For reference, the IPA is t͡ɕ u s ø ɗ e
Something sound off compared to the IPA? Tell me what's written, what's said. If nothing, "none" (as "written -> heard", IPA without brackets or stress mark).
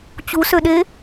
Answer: none